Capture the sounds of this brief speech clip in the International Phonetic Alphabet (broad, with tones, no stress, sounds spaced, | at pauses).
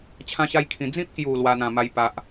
t͡ɕʰ ã˦ ɕ a˦ j kʰ ĩ˧ d͡z ĩ˦ p̚ k j u˨˩ l w a˧ n̪ ã˨˩ m a˧ j p a˨ ʔ